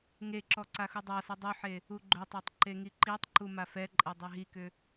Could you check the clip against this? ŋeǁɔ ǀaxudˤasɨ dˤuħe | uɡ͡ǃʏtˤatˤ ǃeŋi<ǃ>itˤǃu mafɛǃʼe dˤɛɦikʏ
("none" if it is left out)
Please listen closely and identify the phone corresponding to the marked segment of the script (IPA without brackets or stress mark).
ǃ